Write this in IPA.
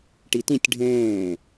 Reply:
ʈ i t ĩ tʲ ɖʱ ẽː

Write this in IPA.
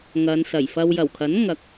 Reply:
ŋ ɐ˨˧ n s ɐ˨˩ j f ɐ˧ w j ɐ˨˩ w kʰ ɐ˨˥ n ŋ ɐ˨˥ k̚

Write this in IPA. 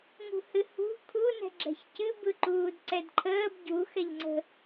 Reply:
ŋ ṳ h ɨ h ṳ kʰ u n ɛ̤ ɡ͡ǁ ɛ̤ ç c ɨ b ɯ ǃ uː d ǀ ɛ d ǃʰ əː b ɟ u x ɛ ʎ ŋ͡ǀ ə̤

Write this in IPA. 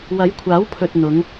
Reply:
w ɐ˨˥ j kʷʰ aː˨˥ w pʰ ɵ˨ t̚ n̪ ʊ˨˧ ŋ

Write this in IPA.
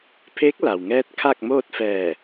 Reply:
pʰ eː˧˥ k̚ l a˩ w ŋ ɛː˧ t̚ kʰ a˥˨ k̚ m oː˥˨ t̚ f ɛː˧˩

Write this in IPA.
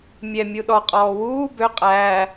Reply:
mʲ ɛ mʲ u ɗ ɔ qʼ ɔː w uː b ø qʼ æː

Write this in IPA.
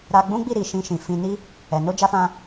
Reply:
ɾ a˧ ɡ͡b ũ˦ ɡ͡b i˦˨ ɾ i˨ ʃ ĩ˧ ʃ ĩ˨ f ĩ˧ n i˦ | ɛ˨ n o˧ d͡ʒ a˧ f ã˧

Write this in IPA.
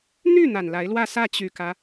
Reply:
n̪ y˥˩ n̪ a˨˩ n l a˧˥ ɪ̯ l w ä˥˧ s ä˥˩ t͡ɕ y˨˩ k ä˦

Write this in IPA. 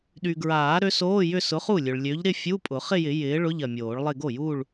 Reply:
ɗ y˨ ɡ ɹ aː˨˩˦ ɾ ø˨˥ s oː˧˥˧ j ʏ˥˧ s ʊ˨˥ χ u˥˩ lʲ ø˨ ɭ lʲ ø˨˥ ʎ ɾ ɪ˥˧ fʲ u˧˥˧ pʼ ʊ˨˩˦ χ ɪ˥˧ j ɪ˨˩˦ j ɪː˨˥ ɭ ʊ˧˥˧ ʎ ɐ˨ mʲ oː˨˩˦ ɭ lˠ ɪ˥˧ ɡ o˥˩ j u˥˧ ɭ

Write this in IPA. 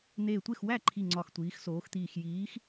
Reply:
n̪ eː˧˩ tʷ e˥˩ x w æ˥˩ ǃʰ i˧˩ ŋ͡ǀ ɒ˧˩ x tʷ iː˨˦ x s oː˨˦ x t̪ iː˧˩ x j iː˨˦ x

